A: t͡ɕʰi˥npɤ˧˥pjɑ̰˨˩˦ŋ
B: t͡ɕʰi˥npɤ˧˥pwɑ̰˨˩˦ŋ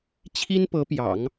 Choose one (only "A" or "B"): A